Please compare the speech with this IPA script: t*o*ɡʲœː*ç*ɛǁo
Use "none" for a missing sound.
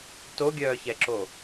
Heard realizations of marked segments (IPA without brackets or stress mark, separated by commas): o, ç